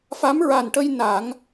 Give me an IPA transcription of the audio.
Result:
f a˧˥ m ɹ a˨˩ n ʈ ə˧ j n a˨˩˦ ŋ

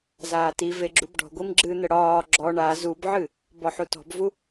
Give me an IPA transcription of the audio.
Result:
z aː t i v e ɡ͡ǁ u b ɖ ɔ̤ ɡʷ i m ɡ͡ǁ ɨ n̪ ə ɽ ɒː ɡ͡ǁ ɔ ɳ a z u b ʕ ɨ | b ɔ ħ u t ɔ̤ b v u

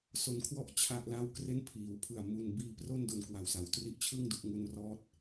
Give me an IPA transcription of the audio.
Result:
s o˧ n kʰ w ɔ˥˩ ʔ t͡ɕʰ a˥˩ ʔ l a˥˩ w k r e˥˩ n pʰ iː˩˦ w pʰ ɯ˨˩ a̯ m u˧ n b iː˧ p r o˥˩ n d o˧ n k w a˨˩ w s a˩˦ w t r i˦˥ ʔ t͡ɕʰ ɯ˥˩ ŋ d u˨˩ ʔ ŋ u˧ n r ɔː˦˥ t̚

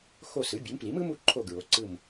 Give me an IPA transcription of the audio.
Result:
x o˦˨ s ɯ˩˥ bʲ ɯ˩˥ m p l i˩˥ m ɯ˩˥ m u˦˨ ǃʰ o˦˨ ɡ ɹ o˩˥ ǀ ɯ˦˨ m

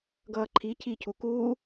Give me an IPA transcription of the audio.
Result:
ɡ ʌː ǃʰ i cʰ i cʰ u k uː

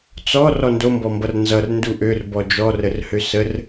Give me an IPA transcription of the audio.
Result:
t͡s ɔ r ɔ n d o m b ɔ m b ʌ r n z ʌ r n d u ʔ ø r b ɔ d͡ʒ ɔ r ə r h ø s ə r

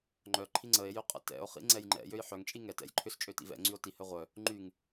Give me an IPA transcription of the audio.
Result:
ŋ͡ǃ œ ǃʰ i ŋ͡ǀ ə e̯ j ʏ qʼ ə̰ t ɛ̰ o̯ χ ḭ ŋ͡ǀ ɛ j ŋ͡ǃ ɛ̰ j ø j ħ œ ŋ t͡ʃʼ i ŋ ɛ t ɛ̰ j ǃʰ ʏ s t͡ʃʼ ø t ḭ v ɛ̰ ŋ͡ǀ y o̯ t i h œ ʁʷ œ | ŋ͡ǃ y ŋ

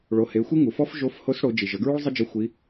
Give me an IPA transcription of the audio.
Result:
ɭ o˩˧ h e˩˧ xʷ i˥ ŋ u˩ f ɔ˥ f ʒ o˧˥ f h o˧˥ s ɽ o˩˧ d͡ʒ i˩ ʒ ə˩˧ ɡ ɹ u˥ ɭ zˤ ɘ˥ d͡ʒ ɘ˧˥ xʷ i˧˥

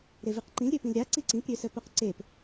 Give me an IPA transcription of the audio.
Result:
ɾ e v i q ǃ ĩ l ɾʲ ø p ĩ l ɾʲ a ǀ i ǀ ĩ p ɾʲ ø s œ p o q ǀ e p

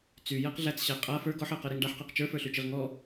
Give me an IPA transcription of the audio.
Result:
t͡s y j æ q ɮ æ t͡s ɕ æ qʼ a f ə˞ ɡ ɔ ħ ɜ q ɜ ɾ i ŋ ɖ a ħ q ɜ q t͡ʃ ə˞ f ə˞ ɬ y t͡ʃ i ʁ ŋ ɔ

